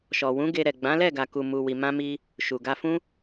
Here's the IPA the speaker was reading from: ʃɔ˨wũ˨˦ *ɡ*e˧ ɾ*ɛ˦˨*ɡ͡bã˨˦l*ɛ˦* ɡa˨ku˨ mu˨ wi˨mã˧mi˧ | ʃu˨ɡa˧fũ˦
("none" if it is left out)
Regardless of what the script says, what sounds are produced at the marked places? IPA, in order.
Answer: ɡ, ɛ˨, ɛ˦˨

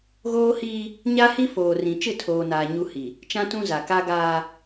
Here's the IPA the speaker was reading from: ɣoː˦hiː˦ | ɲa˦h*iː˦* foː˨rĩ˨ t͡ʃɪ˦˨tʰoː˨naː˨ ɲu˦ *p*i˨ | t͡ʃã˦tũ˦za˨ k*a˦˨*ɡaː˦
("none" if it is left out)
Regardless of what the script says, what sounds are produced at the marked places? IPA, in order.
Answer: i˦, h, a˦

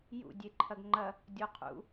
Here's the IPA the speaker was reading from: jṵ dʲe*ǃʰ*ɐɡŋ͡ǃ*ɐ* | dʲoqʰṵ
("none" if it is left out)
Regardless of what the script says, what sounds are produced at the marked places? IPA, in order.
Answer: ǃʰ, ɐ

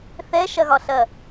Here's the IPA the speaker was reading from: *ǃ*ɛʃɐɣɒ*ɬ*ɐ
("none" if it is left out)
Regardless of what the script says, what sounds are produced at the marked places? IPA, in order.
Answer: θ, ɬ

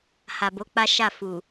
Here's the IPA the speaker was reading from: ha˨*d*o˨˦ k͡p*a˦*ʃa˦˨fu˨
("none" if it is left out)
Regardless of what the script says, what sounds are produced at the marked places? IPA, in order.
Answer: b, a˦

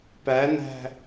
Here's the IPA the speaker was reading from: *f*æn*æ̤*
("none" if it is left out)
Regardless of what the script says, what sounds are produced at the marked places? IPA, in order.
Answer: p, æ̤

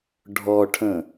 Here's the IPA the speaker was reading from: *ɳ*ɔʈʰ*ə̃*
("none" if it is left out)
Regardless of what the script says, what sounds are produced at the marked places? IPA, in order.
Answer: ɖʱ, ə̃

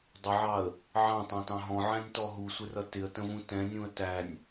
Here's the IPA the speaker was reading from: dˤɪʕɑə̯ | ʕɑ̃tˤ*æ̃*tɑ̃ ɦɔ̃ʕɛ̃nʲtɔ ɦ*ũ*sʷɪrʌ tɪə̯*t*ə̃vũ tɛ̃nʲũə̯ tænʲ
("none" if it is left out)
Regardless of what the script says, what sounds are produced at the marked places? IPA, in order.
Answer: æ̃, u, t

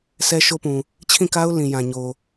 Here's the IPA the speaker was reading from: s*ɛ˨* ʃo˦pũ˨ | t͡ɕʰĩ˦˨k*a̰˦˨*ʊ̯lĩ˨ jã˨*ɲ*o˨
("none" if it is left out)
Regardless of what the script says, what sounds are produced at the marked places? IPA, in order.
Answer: ɛ˦, a˦, ɲ

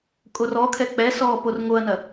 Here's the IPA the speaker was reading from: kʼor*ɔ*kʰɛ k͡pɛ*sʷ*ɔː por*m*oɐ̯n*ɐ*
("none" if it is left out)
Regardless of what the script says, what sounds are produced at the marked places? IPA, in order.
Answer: ɔ, s, ŋ, ɐ

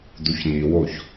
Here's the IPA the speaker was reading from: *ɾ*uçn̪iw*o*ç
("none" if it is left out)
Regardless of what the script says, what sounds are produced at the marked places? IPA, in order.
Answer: d̪, o

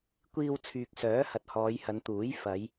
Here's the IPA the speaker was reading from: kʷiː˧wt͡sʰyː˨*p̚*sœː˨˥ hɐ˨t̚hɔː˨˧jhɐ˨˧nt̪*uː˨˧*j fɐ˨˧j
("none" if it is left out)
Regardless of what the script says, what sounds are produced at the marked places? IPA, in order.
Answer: k̚, uː˨˥

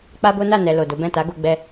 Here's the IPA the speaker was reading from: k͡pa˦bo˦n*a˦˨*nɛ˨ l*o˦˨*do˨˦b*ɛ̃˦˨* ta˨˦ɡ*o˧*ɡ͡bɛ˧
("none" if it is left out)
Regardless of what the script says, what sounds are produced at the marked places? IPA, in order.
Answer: a˦˨, o˨, ɛ̃˦˨, o˧

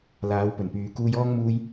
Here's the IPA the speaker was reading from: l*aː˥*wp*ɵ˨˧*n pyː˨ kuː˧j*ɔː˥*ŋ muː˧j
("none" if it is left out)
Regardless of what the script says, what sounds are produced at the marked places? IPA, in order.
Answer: aː˨˧, ɵ˨˩, ɔː˥

